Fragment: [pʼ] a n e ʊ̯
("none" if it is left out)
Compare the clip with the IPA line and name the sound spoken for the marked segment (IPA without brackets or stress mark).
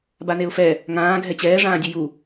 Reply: b